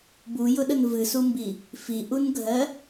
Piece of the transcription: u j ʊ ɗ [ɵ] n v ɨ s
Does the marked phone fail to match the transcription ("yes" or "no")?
yes